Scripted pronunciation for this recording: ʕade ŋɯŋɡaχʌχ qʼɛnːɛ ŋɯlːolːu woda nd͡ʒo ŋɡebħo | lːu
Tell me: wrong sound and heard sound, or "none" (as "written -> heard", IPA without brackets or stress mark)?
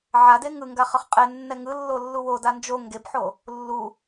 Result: none